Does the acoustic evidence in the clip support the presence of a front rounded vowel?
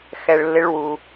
no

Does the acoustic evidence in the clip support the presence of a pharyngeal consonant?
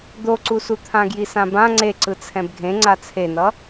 no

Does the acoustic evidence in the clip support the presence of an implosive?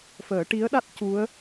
yes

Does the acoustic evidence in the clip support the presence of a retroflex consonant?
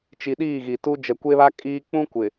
no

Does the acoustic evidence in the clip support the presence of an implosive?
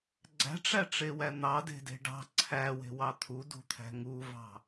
no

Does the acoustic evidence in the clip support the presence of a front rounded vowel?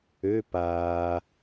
yes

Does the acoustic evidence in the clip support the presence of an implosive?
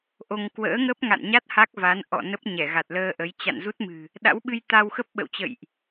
yes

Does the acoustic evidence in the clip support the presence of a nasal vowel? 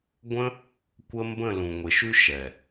yes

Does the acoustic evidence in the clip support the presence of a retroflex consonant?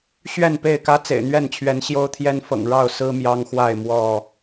yes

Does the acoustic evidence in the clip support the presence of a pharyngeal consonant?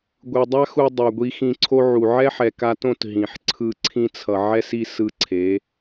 yes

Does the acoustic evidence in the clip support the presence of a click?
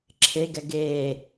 yes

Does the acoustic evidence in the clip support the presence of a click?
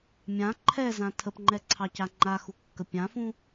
yes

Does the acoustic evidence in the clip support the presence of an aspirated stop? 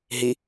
no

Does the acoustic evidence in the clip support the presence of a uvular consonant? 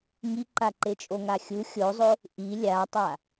no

